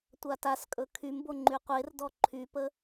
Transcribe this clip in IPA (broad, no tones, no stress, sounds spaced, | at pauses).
tʷ a t a s kʼ ɵ kʰ y m b o ŋ͡ǃ y qʷ e r d ɔ ǃʰ y p ə